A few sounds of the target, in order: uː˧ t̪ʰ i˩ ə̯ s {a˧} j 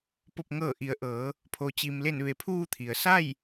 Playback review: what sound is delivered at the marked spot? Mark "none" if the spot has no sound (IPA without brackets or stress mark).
a˥˨